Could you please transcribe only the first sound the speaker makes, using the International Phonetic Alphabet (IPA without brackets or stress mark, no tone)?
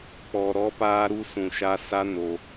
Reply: k͡p